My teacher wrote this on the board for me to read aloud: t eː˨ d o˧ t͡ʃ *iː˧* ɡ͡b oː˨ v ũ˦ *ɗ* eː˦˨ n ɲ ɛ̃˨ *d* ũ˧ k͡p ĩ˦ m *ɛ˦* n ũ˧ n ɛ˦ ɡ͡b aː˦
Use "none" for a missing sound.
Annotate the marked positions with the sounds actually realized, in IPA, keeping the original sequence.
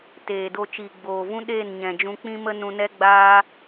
iː˨, ɗ, d͡ʒ, ə˦

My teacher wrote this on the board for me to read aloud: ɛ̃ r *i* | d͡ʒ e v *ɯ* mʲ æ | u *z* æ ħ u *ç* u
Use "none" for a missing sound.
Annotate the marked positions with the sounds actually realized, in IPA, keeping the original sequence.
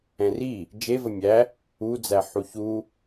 i, ə, d͡z, ç

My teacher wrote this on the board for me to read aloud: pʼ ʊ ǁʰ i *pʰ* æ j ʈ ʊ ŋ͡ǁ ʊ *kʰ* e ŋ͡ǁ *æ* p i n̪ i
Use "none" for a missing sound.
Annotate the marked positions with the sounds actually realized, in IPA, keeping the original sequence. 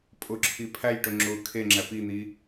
pʰ, kʰ, æ

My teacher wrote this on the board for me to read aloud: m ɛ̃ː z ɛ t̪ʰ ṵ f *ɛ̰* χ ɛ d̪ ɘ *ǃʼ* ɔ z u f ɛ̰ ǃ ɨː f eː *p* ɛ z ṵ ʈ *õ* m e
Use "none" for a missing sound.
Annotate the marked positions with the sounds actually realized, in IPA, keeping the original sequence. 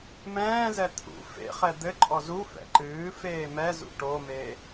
ḛ, ǃʼ, m, o

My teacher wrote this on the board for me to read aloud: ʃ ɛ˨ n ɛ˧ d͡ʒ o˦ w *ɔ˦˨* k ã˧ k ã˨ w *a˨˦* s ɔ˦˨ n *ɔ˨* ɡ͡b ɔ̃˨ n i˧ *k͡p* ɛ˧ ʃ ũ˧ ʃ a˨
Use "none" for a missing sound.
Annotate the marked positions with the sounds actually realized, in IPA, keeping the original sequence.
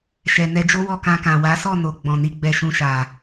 ɔ˦˨, a˨˦, o˨, ɡ͡b

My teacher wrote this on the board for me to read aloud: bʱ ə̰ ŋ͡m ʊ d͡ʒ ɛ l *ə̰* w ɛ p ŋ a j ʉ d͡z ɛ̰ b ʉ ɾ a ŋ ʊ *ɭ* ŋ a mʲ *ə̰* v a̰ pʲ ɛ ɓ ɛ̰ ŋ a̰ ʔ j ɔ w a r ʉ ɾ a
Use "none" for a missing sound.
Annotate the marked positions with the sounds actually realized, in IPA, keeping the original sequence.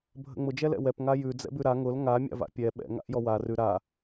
ɛ̰, l, a̰

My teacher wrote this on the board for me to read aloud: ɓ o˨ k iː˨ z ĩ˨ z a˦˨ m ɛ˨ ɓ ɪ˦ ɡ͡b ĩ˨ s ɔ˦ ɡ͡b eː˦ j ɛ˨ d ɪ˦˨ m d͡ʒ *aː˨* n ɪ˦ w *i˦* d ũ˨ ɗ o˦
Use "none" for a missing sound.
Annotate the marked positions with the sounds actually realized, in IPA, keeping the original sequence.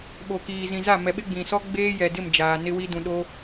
aː˨, i˦

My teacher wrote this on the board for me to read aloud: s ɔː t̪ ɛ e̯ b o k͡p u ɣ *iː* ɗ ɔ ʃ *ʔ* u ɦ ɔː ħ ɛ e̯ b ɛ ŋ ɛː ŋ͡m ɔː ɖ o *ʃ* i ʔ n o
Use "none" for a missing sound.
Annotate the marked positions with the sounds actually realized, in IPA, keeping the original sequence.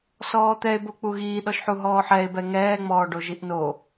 iː, ħ, ʒ

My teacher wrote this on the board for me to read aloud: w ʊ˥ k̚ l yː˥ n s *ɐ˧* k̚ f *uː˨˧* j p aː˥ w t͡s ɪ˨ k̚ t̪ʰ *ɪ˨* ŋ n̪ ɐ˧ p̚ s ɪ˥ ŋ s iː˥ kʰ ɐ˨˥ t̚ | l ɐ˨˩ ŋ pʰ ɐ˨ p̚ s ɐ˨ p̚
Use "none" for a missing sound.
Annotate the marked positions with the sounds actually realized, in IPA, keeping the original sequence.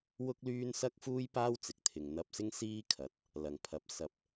ɐ˥, uː˥, ɪ˨

